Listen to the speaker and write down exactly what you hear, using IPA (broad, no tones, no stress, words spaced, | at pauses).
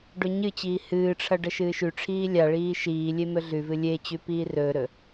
ɖɵɲɨt͡ɕiː hɨːʈ͡ʂʰɐ ɖɐʃɨːʃʉʈ͡ʂʰiː lʲaɭiː ʃiːlʲe mɵɮʉvɨ lʲet͡ɕʉ piːrɵːɾɵ